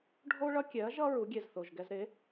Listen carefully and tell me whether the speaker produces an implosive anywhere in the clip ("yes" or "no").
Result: no